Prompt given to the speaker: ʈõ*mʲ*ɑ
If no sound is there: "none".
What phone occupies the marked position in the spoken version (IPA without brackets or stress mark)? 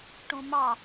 m